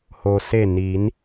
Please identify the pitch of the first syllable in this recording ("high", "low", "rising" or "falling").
low